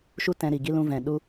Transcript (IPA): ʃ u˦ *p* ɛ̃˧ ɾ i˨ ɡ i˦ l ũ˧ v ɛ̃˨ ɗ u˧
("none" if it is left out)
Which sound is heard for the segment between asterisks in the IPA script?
t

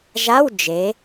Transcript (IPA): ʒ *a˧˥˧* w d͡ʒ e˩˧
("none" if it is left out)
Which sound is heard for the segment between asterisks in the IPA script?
a˧˥˧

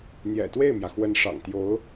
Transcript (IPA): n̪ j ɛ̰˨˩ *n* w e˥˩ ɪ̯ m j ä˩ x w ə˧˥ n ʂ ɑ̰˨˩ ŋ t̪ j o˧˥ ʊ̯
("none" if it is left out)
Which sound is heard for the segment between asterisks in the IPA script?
t̪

